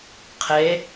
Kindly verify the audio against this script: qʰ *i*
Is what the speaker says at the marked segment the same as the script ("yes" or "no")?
no